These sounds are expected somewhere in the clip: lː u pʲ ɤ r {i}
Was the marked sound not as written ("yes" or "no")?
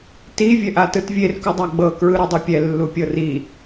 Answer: no